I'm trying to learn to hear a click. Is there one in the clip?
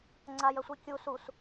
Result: yes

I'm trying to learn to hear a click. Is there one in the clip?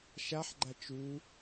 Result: yes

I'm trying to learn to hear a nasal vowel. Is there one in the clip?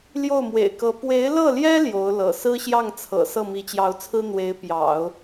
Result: no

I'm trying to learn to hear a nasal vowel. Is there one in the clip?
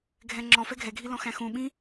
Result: yes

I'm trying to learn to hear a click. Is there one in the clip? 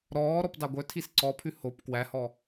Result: yes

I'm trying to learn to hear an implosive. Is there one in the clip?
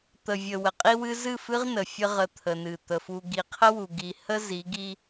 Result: no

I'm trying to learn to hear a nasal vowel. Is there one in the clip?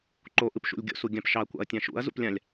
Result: yes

